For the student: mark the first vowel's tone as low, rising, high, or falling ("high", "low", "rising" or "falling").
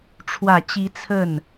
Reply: low